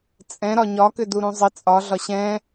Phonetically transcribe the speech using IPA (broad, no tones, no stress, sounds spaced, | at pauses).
t͡sʼ ɛ̃ ɾ ɒ ɲ ɒ k ʏ d u ɾ ũ zˤ ɪ t͡sʼ ɒ ɮ ɒ ɕ ɛ̃